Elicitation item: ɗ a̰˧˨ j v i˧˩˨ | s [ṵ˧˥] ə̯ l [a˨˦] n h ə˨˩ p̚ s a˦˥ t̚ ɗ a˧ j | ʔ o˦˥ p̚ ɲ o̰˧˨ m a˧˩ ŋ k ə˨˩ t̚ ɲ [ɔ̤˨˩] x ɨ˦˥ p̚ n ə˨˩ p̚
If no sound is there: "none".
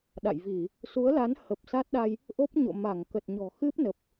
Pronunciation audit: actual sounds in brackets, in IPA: u˨˦, a˨˦, ɔ̤˨˩

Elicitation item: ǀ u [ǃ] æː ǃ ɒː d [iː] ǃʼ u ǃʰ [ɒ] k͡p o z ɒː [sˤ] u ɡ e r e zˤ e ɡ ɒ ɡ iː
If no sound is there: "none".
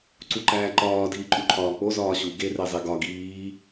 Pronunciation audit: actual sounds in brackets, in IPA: ǃ, iː, ɒː, ɕ

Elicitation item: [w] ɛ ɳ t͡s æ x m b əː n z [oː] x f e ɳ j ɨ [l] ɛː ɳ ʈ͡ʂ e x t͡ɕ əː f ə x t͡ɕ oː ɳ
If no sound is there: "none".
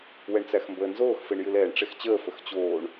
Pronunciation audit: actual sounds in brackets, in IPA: w, oː, l

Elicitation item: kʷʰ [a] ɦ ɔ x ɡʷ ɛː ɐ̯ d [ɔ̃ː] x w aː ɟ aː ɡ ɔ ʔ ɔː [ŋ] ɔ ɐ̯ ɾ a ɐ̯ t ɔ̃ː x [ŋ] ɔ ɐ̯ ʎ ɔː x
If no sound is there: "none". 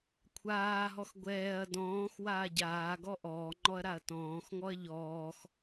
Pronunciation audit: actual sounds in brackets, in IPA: aː, ɔ̃ː, ŋ͡ǃ, ŋ

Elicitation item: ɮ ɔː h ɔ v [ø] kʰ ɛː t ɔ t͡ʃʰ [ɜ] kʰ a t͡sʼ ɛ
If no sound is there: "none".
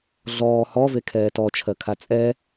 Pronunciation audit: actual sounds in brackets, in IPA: e, ɜ

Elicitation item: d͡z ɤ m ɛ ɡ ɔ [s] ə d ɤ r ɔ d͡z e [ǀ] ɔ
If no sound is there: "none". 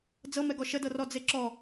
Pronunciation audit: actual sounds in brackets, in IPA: ʃ, ǁ

